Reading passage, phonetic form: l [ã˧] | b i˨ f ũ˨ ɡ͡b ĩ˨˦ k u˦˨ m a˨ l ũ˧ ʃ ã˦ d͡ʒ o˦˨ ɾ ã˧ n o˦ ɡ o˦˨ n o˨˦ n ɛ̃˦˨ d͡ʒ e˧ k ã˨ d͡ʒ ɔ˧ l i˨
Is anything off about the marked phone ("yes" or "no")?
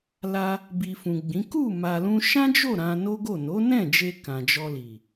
yes